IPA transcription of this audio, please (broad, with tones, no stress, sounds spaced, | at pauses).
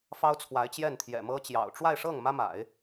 f ɑ˥ ʊ̯ t͡sʰ w a˧˥ ɪ̯ t͡ɕ j ɛ˥˩ n t̪ʰ j ɛ̰˨˩ m ɤ˥ t͡ɕ j ɑ̰˨˩ ʊ̯ ʈ͡ʂ w a˥˧ ɪ̯ ʂ ɤ˥˩ ŋ m ä˥ m a̰˨˩˦ ɪ̯